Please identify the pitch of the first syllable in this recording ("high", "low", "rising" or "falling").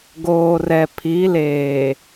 low